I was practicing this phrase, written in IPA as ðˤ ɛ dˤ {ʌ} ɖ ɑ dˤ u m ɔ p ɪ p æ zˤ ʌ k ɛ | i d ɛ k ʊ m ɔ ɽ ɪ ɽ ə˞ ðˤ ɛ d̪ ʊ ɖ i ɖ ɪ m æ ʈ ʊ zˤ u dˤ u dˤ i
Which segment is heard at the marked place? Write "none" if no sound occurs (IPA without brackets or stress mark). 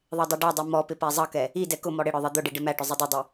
ʌ